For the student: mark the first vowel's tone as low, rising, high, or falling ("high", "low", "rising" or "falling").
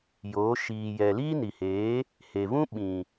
rising